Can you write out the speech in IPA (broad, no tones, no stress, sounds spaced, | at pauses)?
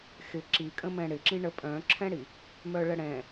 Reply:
x ɪ ǁ i kʼ ə̃ m ɛ̃ ɽ ɪ ǁ ĩ ɳ ə pʼ œ̃ ǁʰ ɛ̃ ɽ i | m œ ɭ ə ɽ ɛ̃